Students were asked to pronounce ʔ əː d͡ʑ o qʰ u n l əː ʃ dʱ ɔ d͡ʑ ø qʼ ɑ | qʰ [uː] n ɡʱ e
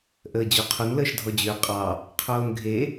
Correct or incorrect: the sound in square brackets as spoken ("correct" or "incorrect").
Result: incorrect